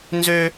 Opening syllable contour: high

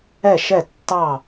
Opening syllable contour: falling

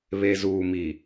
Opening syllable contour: low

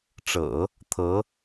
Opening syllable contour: low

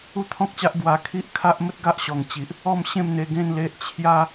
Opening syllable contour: falling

